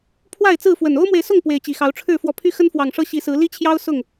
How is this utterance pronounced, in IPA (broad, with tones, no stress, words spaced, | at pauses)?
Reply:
pʰwa˥˨ɪ̯t͡sɹ̩˥˨fwə˨˩n o˦ʊ̯mwe˨ɪ̯sʊ˥˨ŋ pwe˨˦ɪ̯t͡ɕi˨˩xɑ˨˦ʊ̯ʈ͡ʂʰɻ̩˥˨ fwɔ˨˩pʰy˦xə˦nfwɑ˨˩ŋ ʂɤ˦ɕi˨˦sɹ̩˨˦ li˦t͡ɕʰjɑ˦ʊ̯ sʊ˥˨ŋ